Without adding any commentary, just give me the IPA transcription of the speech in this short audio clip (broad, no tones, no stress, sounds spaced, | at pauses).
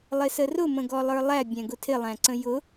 lˠ ɪ s ə r ʊ m ə̃ ɡ ɔ lˠ ə˞ lˠ æ bʲ æ̃ ɡ ʊ tʰ ɪ lˠ æ̃ ǀ ə̃ j ʊ